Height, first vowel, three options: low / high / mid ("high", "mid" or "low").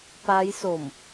low